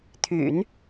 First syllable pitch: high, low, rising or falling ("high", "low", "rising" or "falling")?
low